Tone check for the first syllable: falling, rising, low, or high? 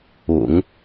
low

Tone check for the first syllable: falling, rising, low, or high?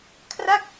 falling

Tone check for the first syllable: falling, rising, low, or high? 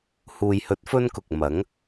low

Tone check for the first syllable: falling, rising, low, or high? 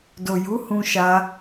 low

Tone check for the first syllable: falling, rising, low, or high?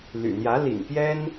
low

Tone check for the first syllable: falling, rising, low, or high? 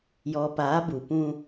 low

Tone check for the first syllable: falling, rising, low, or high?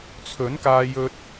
rising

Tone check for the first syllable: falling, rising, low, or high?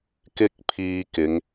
high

